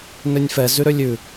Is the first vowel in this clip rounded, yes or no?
yes